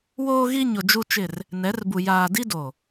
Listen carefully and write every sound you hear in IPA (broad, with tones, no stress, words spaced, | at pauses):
woː˦ɣi˦ɲʊ˨ d͡ʒu˦t͡ʃɪ˦˨r | nɛ˨˦rbu˨ jaː˨di˦do˨